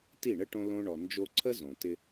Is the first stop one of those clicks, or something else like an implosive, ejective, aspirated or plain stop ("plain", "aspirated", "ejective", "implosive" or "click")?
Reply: plain